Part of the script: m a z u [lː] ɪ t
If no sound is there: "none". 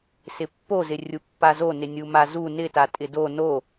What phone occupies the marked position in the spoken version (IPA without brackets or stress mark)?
n